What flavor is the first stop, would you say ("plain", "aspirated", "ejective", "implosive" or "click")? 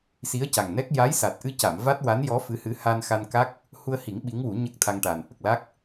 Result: plain